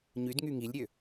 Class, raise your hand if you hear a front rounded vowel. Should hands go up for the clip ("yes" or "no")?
yes